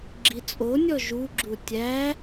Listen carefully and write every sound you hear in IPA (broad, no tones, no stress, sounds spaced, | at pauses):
ɡ͡ǁ i t͡sʼ o nʲ ɔ ʒ u ɡ͡ǁ u tʲ æ